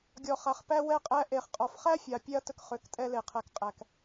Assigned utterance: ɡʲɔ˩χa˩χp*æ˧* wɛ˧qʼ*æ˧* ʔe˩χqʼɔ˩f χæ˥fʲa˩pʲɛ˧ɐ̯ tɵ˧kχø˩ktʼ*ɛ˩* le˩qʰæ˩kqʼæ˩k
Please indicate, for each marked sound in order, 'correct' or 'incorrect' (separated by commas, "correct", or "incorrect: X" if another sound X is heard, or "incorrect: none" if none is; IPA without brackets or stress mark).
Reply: correct, correct, incorrect: ɛ˧